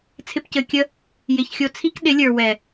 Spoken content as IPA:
t͡sʰ ɪ˦ p c ɘ˧ kʲ ə˦ | j ɪ˧ ç xʲ o˧ t͡sʰ i˦ k ɗ ɪ˨˦ lʲ ə˞˨ w ɛ˨

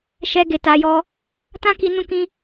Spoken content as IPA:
ʃ ɛ˦ ɡ e˧ t a˧ j ɔ˦ | t ã˦ k i˧ n ũ˦ k ĩ˦

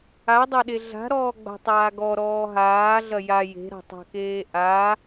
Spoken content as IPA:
a dˤ ɐ ɗ e ɮ a̤ ɾ ɔː ɡ͡b a̤ tˤ aː ɡ ɔ ɾ ɔː ɦ aː ɮ ɐ j a j e̤ ɾ a̤ tˤ a̤ k eː ʔ a

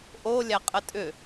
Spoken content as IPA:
ʔ o lʲ æ qʼ ə tʼ ʏ

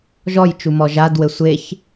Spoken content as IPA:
ʒ ɔ j t͡ʃ u m ɔ ʒ a d w ɘ sʷ e ç

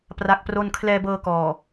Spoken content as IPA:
p r a˦˥ k̚ p r o˥˩ n kʰ l ɛː˧ b ɤː˧ k ɔː˨˩

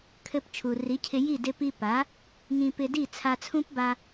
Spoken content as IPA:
kʰ ɘ˧ p t͡ʃʰ u˩ r i˩˥ cʰ ɪ˧ j i˥˩ d ɪ˧ p i˧ p a˩˥ | ŋ ĩ˧ p ɪ˧ d i˥˩ t͡sʰ a˧ t͡sʰ ũ˥ p b a˧

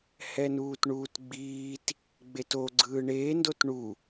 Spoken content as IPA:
h ɛ n uː t ɳ uː t ɡ͡b iː t | ɡ͡b e t o ɡ͡ǀ ɯː ɳ eː n d o t ɳ u

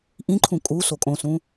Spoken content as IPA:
ʔ ĩ ǃʰ ũ kʼ u s o kʼ õ s ũ

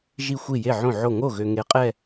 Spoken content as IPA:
ʒ i˥˩ xʷ i˥˩ j e˥˩ ʕ õ˥˩ ʕ o˥˩ ŋ o˥˩ ɣ ø˨ ŋ e˨˥ qʼ ɛ˥˧

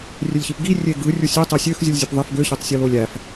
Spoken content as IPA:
rʲ ø lʲ ç i p ɡ i rʲ e ɡ ɯ rʲ u sʲ ø tˤ e sʲ ø x zʲ u lʲ zʲ o p ðˤ e f ɡ ø ç e tˤ sʲ o l o lʲ æ f

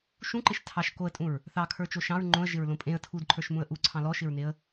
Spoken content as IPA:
ʃ ũ ǃ ɪ ʃ tʰ ɑ ʃ k o ə̯ tʼ ũ ɹ | θ ɑ kʰ ə˞ t͡ʃ o ʃ ɑ̃ ɹ ŋ͡ǃ õ ə̯ ʒ ɪ ɹ l õ pʼ ẽ ə̯ tʰ u d ǃʰ ə˞ ʃ m ũ ə̯ ʔ u ǀʰ ɑ̃ l ɔ ʃ ɪ ɹ n e ə̯

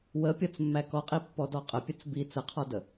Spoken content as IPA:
w ə pʲ ɔ t͡s mː æ k ɔ qʼ i pː ɔ d ɔ qʼ ə pʲ ə t͡s b i t͡s ə qʰ ɔ d ə

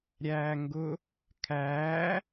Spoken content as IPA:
ɾʲ æː ŋ ɡ ʊ | kʰ æː

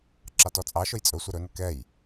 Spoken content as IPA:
ǁ ɑ t ɔ t͡sʼ ɑ ʃ ʊ j t͡sʼ ɵ sʷ ɛ ɾ ɵ n ə k ɛ j

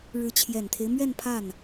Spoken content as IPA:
ɻ ɻ̩˧˥ t͡ɕʰ j ɛ˨˩ n t̪ʰ e˦ ɪ̯ m ɥ ɛ˥˧ n pʰ a˥˩ n

